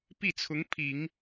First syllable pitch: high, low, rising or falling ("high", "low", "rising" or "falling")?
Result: falling